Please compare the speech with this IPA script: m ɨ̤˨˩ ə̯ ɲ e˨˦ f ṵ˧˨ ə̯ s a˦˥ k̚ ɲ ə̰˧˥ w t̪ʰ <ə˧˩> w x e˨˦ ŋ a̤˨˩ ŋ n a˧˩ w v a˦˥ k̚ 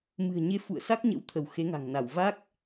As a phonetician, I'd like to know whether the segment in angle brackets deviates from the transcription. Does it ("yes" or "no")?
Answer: no